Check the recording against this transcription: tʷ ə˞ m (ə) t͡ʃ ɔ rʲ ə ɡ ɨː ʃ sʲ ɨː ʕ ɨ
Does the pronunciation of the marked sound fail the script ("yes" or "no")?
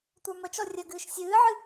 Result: no